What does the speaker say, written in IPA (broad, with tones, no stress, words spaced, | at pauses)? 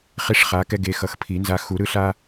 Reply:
χi˦ʂχa˨˦kɛ˦ ɡe˨˦xʌ˨˦xpʰi˨˩˦ nza˨˦ xu˨˩˦ɾɯ˦ɬa˦